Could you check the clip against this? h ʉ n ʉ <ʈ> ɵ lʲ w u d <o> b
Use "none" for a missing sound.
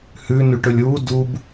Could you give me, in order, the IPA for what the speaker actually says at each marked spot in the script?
ʈ, u

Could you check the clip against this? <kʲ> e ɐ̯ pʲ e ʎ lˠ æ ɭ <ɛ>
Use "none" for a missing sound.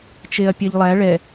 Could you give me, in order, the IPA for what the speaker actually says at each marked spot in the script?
t͡ʃ, ɛ

